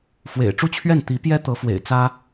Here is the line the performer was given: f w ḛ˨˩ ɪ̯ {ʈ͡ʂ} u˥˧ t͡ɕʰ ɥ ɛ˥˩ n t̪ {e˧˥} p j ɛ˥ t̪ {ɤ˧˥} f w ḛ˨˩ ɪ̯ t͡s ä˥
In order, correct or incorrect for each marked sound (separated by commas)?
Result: correct, incorrect, correct